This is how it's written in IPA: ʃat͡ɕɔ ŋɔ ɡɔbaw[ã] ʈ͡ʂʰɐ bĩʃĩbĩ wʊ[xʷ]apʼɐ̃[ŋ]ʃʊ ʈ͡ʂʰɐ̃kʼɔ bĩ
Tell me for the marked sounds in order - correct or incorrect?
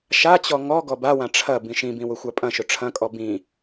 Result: correct, correct, incorrect: none

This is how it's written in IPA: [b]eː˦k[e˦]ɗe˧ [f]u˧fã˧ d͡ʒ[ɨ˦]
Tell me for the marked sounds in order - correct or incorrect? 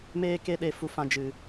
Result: incorrect: m, correct, correct, incorrect: ɨ˨

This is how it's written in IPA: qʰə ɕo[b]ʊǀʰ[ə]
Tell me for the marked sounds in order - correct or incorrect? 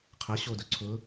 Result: incorrect: d, incorrect: ʊ

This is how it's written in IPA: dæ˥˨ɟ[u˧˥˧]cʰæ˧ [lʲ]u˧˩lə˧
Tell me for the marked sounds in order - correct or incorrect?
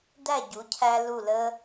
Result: incorrect: u˩˥, incorrect: l

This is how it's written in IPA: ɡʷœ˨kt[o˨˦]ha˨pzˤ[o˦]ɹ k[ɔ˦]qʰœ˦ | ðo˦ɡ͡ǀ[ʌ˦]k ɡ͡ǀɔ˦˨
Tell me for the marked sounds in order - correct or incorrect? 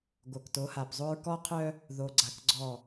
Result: correct, correct, correct, incorrect: a˦

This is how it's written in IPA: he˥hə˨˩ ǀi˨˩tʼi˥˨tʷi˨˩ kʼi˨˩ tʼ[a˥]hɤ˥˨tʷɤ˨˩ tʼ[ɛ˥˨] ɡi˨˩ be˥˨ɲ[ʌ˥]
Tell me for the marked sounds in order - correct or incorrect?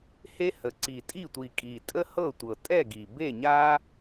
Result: incorrect: ə˥, correct, incorrect: a˥

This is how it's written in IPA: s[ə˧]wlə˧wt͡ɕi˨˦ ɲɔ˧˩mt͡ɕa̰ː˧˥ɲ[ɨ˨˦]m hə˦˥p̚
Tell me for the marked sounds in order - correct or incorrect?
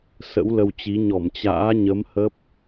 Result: incorrect: ə̰˧˥, incorrect: ə˨˦

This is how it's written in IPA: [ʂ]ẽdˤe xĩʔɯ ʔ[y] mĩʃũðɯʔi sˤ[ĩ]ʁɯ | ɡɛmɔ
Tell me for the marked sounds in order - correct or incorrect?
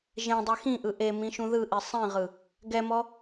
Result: incorrect: ʒ, incorrect: e, correct

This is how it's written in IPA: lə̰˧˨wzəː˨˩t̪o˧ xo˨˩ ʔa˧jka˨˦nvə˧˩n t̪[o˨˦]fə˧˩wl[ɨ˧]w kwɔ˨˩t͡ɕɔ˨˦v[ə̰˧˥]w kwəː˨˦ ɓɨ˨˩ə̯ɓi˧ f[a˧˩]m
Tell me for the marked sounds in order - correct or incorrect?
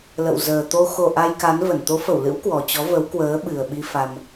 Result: correct, incorrect: ɨ̰˧˥, incorrect: ə˨˦, incorrect: a˧

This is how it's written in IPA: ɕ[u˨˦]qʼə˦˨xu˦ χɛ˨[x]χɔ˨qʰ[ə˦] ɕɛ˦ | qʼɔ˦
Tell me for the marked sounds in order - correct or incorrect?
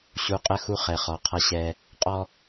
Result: correct, incorrect: none, incorrect: ʌ˦

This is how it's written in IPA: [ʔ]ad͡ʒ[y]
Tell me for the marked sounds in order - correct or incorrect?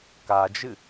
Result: incorrect: k, incorrect: ɨ

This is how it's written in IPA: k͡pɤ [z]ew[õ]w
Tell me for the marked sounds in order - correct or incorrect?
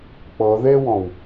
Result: incorrect: ð, incorrect: ɔ̃

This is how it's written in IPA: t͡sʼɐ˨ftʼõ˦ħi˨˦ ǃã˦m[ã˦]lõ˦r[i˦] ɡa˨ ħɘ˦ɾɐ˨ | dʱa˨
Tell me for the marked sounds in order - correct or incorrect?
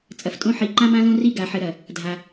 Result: correct, correct

